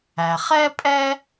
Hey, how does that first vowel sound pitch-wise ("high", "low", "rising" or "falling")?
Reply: low